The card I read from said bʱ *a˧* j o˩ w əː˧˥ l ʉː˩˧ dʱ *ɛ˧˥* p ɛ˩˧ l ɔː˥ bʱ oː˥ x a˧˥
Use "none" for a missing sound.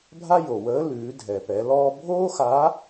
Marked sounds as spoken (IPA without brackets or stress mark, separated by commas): a˥, ɛ˩